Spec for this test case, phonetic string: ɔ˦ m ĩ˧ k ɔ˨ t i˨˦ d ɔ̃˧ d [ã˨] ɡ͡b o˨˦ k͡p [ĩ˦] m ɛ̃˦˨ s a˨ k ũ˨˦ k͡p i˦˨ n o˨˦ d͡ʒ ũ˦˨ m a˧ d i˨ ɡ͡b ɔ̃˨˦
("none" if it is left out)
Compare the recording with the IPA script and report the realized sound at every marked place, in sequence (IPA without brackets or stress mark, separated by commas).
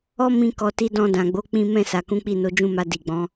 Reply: ã˨, ĩ˦